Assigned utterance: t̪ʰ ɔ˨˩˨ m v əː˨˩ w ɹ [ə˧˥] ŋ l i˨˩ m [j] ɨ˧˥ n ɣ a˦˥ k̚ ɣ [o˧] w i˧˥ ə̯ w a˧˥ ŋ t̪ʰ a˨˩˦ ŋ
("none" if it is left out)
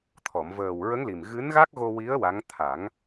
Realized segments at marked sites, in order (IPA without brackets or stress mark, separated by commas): ə˧˥, ɣ, o˧